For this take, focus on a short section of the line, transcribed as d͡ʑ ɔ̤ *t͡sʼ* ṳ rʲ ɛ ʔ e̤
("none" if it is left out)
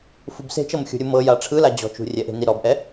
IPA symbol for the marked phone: t͡ʃ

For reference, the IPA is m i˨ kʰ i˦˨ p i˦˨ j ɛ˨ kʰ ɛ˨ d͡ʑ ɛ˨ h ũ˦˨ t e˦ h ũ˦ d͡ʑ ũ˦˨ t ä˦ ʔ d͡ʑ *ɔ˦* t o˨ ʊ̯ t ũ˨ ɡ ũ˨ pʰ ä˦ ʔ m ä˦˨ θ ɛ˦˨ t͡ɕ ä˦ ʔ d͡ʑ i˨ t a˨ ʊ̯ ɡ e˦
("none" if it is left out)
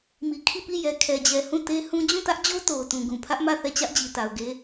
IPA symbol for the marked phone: o˦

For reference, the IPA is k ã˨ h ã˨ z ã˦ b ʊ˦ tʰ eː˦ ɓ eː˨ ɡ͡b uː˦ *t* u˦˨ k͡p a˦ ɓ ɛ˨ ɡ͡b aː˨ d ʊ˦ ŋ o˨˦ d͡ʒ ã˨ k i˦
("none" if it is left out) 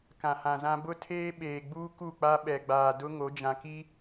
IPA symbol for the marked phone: k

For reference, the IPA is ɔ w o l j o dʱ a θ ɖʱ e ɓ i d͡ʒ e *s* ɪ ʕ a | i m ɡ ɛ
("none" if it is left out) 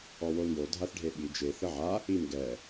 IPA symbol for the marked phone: θ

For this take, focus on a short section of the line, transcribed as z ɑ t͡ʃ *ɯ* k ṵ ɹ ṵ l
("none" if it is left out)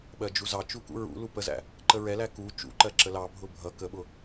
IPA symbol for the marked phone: u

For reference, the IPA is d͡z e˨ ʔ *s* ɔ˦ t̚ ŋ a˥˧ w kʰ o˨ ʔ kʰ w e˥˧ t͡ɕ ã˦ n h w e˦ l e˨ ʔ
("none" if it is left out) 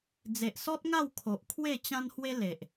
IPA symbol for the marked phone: s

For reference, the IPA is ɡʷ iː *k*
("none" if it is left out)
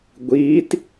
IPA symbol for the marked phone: t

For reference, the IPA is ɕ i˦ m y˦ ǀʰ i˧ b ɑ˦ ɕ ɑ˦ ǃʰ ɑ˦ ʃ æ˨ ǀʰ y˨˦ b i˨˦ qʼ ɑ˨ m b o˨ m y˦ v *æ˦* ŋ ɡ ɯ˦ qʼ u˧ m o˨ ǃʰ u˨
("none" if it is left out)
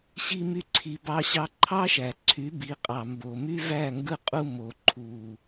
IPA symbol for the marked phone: æ˦˨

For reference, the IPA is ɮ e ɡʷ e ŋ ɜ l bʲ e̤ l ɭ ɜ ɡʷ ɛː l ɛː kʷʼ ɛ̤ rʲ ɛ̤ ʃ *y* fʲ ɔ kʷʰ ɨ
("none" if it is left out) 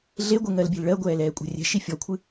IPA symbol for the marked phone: i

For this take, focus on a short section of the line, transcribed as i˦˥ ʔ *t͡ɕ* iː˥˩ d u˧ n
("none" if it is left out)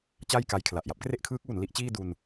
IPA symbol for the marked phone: t͡ɕ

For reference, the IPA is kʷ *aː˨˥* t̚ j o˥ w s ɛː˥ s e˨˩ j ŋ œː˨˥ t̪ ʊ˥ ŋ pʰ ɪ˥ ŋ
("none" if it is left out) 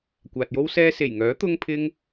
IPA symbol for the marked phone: aː˨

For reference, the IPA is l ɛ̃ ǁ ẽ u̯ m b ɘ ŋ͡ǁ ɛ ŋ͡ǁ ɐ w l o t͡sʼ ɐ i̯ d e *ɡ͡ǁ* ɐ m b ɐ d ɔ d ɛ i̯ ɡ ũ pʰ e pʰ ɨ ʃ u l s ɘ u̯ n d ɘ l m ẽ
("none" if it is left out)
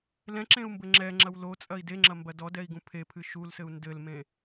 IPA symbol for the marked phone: ŋ͡ǁ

